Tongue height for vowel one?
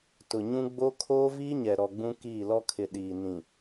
high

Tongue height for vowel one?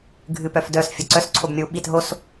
high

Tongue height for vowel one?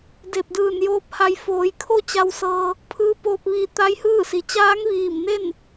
mid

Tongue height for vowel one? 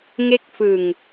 mid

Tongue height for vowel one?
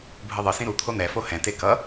high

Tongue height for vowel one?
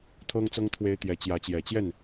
mid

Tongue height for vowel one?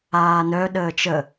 low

